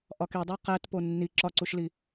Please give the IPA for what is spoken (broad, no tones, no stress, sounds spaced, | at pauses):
ʔ ɒ k i dˤ æ q æ t p o nː i ǁ ɒ ǀ u ʃ l i